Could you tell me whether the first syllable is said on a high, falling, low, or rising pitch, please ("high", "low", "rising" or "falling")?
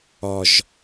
low